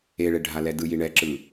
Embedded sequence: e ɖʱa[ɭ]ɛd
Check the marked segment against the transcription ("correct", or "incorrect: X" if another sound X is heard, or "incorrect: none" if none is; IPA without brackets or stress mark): incorrect: l